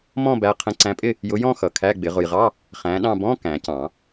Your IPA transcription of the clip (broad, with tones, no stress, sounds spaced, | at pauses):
m ɔ̃˥˧ b æ˨˦ qʰ ə̃˨˦ ǀ æ̃˨˦ pʼ ɪ˥˧ | j ʊ˨˦ j ɔ̃˥˧ x ʌ˨ kʰ æ˧˥˧ ɡ͡b ɪ˨˩˦ ʁ ʊ˨ j ʁ ɑ˧˥˧ | χ æ̃˨˦ ɗ ɑ̃˥˧ b ɔ̃˧˥˧ k æ̃˨˩˦ c ɑ̃˨˩˦